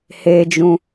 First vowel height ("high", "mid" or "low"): mid